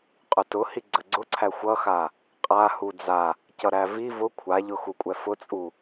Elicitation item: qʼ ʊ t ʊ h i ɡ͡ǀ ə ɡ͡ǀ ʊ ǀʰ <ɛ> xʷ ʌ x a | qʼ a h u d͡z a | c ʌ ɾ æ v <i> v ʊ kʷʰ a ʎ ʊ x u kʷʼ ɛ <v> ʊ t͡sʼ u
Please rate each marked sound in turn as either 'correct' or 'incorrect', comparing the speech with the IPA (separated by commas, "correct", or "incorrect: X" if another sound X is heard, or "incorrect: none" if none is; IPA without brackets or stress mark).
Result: incorrect: æ, correct, incorrect: f